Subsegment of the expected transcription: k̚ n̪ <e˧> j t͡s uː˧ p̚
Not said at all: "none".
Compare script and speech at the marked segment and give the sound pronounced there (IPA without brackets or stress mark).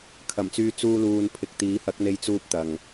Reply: e˧